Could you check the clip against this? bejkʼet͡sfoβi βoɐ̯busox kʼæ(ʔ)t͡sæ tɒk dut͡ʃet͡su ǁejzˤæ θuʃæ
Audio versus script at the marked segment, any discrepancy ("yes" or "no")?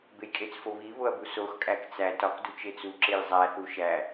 yes